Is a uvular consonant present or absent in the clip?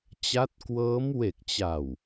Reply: absent